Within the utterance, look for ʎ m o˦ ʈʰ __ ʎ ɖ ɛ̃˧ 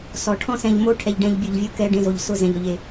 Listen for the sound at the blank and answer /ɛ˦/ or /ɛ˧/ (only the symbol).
ɛ˧